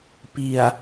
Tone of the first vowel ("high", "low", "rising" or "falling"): low